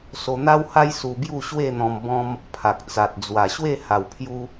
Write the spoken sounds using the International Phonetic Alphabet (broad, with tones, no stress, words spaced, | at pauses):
so˧n̪a˦wha˦j su˧bju˥˧ ɕwe˥˧n̪ɔ̃˧m bɔ̃˧m | pʰa˨k̚t͡sa˨t̚ d͡zwa˨˩ɕwe˥˧ ha˨˩wpʰju˧